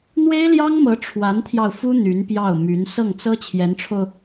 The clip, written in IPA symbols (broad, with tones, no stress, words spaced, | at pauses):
n̪we˥ɪ̯ljɑ˥ŋmɤ˧˥ ʈ͡ʂʰwa˧˥nt̪ʰjɑ˧ʊ̯fu˥ n̪y˧˥npjɑ˥˩ʊ̯ my˧˥n sɤ˥˩ŋt͡sɤ˥ t͡ɕʰjɛ˧˥nʈ͡ʂʰo˧ʊ̯